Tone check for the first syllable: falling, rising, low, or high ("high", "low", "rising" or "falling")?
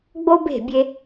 high